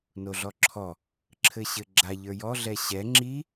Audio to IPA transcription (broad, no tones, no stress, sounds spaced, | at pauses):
n o ɮ ɔ ǁʰ ɔ | ǁʰ ɘ ɕ ɘ ɡ͡ǁ a ʎ ə˞ j ɔ ɮ ɛ ɕ ɛ ŋ͡ǁ i